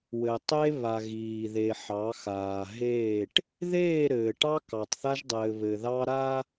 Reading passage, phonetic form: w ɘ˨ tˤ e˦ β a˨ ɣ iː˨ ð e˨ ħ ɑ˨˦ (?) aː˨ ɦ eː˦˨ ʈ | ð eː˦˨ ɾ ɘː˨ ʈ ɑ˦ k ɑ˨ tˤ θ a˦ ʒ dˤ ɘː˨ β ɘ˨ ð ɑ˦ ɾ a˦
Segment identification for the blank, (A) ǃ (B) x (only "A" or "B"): B